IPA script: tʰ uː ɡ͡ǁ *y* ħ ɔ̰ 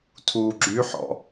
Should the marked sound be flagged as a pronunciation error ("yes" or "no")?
no